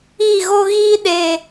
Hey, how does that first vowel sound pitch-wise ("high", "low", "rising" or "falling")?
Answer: falling